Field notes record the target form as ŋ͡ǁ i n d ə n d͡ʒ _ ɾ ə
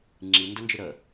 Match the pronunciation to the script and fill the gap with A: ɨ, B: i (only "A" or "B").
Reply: A